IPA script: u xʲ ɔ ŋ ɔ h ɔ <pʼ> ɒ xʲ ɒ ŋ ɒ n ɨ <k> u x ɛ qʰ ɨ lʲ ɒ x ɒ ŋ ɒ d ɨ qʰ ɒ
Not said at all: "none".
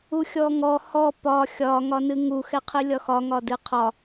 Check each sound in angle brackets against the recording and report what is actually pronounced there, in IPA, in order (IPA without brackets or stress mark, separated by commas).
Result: p, ŋ